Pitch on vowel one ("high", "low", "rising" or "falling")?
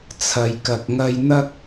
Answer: low